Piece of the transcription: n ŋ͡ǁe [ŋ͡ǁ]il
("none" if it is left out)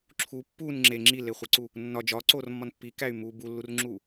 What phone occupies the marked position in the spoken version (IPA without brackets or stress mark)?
ŋ͡ǁ